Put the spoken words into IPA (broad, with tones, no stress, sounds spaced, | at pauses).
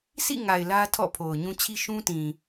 sʰ ḭ˦˨ ŋ a˨ ɪ̯ l ä˦ tʰ ɔ̰˦˨ pʰ o˨ ʊ̯ ɲ ũ˦ t͡ɕʰ i˦ ʃ ũ˦ t ĩ˨